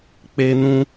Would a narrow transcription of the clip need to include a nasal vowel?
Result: yes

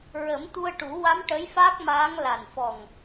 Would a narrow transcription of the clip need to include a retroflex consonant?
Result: yes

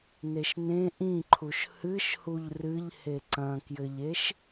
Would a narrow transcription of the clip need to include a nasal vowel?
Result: yes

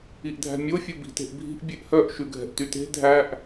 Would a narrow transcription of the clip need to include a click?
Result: no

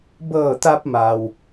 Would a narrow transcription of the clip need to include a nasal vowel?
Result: no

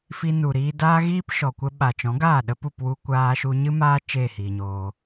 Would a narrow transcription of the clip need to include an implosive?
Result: yes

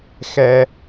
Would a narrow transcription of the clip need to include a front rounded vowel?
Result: no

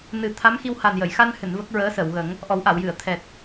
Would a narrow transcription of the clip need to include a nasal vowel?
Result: no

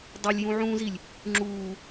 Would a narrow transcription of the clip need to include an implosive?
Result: no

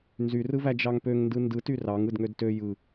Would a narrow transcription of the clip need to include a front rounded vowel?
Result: yes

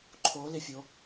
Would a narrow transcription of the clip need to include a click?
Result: yes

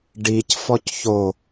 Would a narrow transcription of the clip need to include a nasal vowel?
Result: no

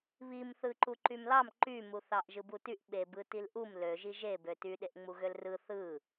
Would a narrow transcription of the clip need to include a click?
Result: yes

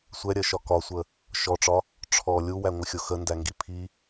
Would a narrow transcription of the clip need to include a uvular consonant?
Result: no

